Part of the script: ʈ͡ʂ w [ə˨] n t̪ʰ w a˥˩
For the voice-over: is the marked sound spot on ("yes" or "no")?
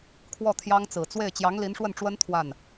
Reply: no